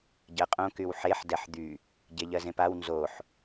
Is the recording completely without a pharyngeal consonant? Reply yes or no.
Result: no